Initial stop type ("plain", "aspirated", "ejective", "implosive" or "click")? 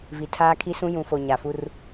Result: aspirated